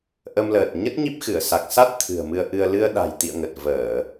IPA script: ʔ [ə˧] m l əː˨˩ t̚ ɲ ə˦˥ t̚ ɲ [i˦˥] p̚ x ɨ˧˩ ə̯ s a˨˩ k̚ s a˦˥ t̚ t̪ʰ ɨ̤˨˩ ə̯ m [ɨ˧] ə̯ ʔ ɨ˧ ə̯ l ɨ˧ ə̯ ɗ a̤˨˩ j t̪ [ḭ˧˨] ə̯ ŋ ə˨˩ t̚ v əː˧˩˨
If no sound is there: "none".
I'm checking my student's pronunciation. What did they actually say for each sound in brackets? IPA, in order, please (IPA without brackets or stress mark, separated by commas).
ə˧, i˦˥, ɨ˧, ḭ˧˨